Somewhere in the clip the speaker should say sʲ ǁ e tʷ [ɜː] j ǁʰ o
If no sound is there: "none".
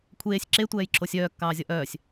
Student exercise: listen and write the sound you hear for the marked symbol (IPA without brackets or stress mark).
ɛː